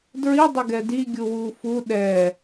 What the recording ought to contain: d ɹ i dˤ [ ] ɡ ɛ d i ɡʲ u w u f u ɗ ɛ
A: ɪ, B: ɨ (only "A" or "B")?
A